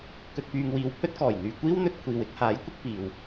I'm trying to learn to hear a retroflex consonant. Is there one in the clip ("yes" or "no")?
no